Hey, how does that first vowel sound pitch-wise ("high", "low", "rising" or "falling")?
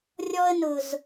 high